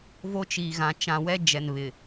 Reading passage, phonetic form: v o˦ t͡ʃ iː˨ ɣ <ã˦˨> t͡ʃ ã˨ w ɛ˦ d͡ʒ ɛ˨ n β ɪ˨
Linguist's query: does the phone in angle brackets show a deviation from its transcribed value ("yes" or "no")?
yes